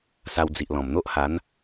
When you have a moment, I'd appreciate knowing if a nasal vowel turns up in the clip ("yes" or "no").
yes